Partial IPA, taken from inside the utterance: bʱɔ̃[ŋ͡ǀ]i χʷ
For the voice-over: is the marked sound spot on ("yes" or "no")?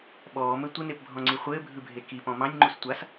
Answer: yes